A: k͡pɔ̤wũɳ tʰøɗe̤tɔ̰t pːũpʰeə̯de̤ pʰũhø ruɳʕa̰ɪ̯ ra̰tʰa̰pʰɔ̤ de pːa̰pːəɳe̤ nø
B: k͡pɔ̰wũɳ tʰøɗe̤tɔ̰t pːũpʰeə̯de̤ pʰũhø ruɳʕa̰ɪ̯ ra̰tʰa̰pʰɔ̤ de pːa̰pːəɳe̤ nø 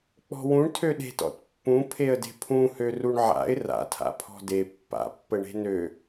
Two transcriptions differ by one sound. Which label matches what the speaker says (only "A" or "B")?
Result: A